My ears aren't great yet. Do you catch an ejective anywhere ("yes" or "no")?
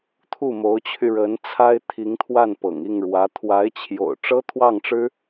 no